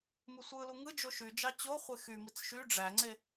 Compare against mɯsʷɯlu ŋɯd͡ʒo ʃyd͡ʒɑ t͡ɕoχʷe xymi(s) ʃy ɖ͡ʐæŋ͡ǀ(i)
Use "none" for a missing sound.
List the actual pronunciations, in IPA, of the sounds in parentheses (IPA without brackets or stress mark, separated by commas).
t͡s, e